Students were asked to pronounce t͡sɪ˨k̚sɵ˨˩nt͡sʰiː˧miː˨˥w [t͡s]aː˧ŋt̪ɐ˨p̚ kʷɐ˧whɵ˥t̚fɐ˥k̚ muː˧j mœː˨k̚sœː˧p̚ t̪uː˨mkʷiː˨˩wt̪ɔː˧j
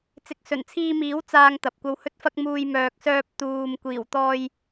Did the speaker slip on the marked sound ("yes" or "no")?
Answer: no